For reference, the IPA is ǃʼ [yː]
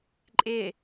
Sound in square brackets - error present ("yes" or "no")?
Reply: yes